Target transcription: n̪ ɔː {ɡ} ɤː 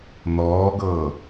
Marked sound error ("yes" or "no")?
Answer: no